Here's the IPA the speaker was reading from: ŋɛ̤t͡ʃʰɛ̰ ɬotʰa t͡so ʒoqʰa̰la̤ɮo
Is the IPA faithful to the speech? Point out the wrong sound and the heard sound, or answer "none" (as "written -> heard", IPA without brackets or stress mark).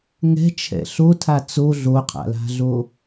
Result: ʒ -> ɮ